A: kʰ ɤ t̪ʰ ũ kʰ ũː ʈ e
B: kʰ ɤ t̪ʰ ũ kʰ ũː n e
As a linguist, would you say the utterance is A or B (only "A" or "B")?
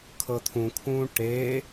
A